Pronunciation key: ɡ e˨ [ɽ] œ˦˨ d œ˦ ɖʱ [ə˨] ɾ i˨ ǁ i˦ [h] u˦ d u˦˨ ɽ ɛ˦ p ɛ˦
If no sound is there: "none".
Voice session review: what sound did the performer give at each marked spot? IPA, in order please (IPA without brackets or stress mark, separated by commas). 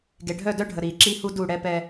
ɖʱ, ə˨, h